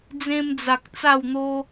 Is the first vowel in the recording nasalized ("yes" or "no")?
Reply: yes